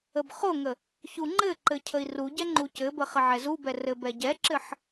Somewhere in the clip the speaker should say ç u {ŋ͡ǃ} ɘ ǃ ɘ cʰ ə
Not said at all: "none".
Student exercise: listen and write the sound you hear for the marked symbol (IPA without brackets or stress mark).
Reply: ŋ͡ǃ